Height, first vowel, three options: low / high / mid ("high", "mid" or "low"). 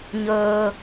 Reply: mid